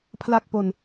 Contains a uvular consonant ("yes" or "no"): no